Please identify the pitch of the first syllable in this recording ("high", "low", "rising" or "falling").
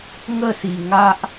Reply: falling